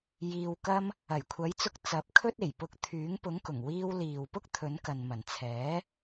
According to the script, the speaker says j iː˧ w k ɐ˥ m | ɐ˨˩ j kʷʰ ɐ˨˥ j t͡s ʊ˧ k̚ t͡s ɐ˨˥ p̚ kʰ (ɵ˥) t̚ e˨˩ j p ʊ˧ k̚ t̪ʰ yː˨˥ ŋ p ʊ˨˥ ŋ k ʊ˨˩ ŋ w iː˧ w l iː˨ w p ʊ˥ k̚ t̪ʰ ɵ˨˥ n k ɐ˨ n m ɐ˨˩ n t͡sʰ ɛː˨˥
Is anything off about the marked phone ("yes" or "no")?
no